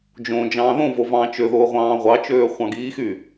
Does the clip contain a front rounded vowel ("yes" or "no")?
yes